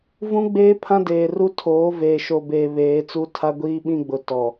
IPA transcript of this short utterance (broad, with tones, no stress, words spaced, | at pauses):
vũ˦ ɡ͡beː˦pʰã˦deː˨ru˦ tʰoː˨˦veː˨ʃo˨beː˨ βeː˨˦t͡su˦tʰa˦ ɡʷiː˦ɓĩ˦ɡ͡bʊ˨ tɔ˨